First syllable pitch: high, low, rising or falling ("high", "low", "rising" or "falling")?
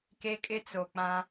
high